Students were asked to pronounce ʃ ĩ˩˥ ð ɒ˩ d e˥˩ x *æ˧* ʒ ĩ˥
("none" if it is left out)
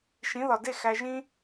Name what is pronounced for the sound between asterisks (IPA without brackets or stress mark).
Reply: æ˧